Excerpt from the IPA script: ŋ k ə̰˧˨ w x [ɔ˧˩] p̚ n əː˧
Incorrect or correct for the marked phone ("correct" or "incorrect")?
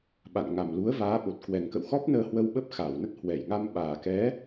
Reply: incorrect